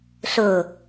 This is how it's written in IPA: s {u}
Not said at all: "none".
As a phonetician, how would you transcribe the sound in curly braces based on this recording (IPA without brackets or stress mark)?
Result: ʊ